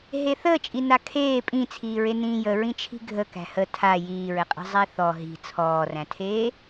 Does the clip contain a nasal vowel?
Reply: yes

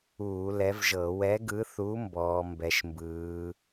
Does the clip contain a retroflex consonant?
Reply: no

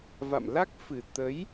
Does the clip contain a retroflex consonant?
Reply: no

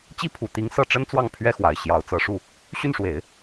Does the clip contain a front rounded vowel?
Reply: yes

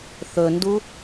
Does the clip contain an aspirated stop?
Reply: no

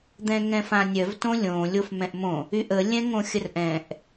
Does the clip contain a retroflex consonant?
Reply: no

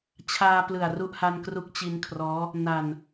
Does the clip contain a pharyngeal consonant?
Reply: no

